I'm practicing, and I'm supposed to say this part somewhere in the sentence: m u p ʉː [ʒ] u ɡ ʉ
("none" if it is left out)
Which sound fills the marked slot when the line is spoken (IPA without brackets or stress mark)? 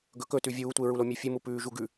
ʒ